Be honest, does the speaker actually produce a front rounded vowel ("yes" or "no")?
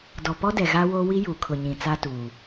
no